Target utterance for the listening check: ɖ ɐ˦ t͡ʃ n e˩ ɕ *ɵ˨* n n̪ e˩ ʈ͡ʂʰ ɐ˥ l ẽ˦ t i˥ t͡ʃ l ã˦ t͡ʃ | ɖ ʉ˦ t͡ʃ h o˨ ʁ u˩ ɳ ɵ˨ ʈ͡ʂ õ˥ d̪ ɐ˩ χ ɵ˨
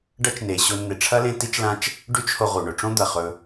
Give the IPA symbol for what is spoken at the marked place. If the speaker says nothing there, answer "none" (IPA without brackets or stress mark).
o˨